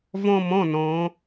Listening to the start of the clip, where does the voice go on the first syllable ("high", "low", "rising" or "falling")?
high